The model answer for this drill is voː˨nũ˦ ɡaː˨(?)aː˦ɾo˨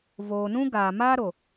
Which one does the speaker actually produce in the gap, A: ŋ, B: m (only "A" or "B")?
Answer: B